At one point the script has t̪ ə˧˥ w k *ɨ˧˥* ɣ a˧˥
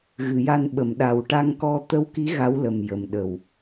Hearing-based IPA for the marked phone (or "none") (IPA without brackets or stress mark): i˧˥